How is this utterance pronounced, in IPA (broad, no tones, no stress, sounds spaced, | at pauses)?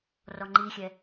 r ɔ ŋ͡ǃ i xʲ ɛ